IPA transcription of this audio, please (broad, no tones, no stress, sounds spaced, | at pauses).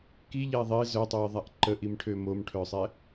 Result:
k i ʎ ɛ ðˤ e z œ tˤ ø j ðˤ a ʔ ǃ ə ʔ i m ʈʰ ø m o m ʈʰ œ sˤ ɛ